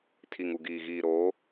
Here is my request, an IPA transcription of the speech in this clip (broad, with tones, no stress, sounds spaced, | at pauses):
tʰ i˨ ŋ u˨ ɡ iː˨ ɣ iː˨ ɾ oː˨˦